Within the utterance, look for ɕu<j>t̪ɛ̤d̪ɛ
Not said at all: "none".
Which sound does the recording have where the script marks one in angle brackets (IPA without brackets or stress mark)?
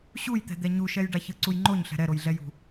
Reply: j